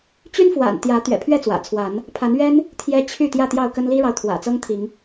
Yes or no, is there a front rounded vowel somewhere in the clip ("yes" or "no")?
yes